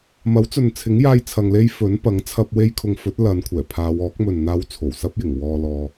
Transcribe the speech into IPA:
mɐ˨˥wt͡sɵ˨nt͡sʰɪ˨˥ŋ jaː˥jt͡sʰɐ˧ŋle˥j fɵ˨˥n pɐ˨˥ŋt͡sʰɐ˧p̚ we˥jkʰʊ˧ŋ fɵ˨˥t̚lɐ˨˧nkʷʰɛː˨˩pʰaː˨˧w ɔː˨˥k̚mɵ˨n n̪aː˨˧w t͡sʰo˨˩wsɐ˥p̚jɪ˨˩ŋwɔː˧ lɔː˧

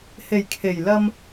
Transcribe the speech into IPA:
he˨˩jkʰe˨˩j lɐ˧m

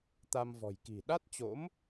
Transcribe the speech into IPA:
t̪a˧mvɔ̤˨˩jki̤˨˩ ɗa˦˥t̚t͡ɕo̰˧˥m

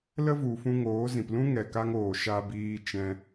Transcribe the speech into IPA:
lə˦vu˨fũ˧ ŋoː˨˦zĩ˨p lũ˦ŋɛ˨ka˧ŋoː˨ ʃa˧biː˧ t͡ʃɛ̃˧

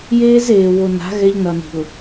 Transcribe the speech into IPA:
jeː˦zeː˨wo˨na̤˨˦ ɣɛ˦ʎnʌ˨ni̤˨ʊ̯

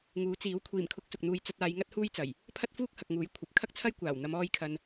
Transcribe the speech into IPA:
ŋuː˨˥ t͡siː˨˥w kʷʰiː˨˩mkʰʊ˨˥k̚ sʊ˨k̚n̪uː˧j t͡sɐ˧t̚aː˨˧jŋɐ˥t̚ huː˥jt͡sɐ˨˩j | pʰɐ˥t̚fuː˥k̚hɐ˨k̚ŋuː˨˥j kʷʰɐ˨p̚ kʰɐ˥k̚t͡sʰɐ˥j kʷaː˨˩wn̪ɐ˨˧m ɔː˧jkʰɐ˨n

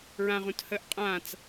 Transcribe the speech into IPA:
ɹãʁũthəːʔ qʼãt͡s

